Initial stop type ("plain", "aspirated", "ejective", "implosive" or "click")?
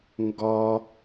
plain